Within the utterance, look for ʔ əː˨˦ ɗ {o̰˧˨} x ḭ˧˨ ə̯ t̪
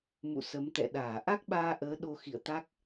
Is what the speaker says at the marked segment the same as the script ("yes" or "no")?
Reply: no